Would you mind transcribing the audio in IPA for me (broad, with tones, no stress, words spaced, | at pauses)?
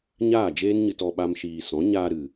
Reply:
ɲaː˦˨d͡ʒeː˦nɲɨ˧t ɔ˧ɓa˦mʃiː˧ sɔ̃˨˦ɲaː˧ɾɨ˨